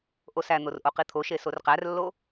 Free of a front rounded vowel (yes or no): yes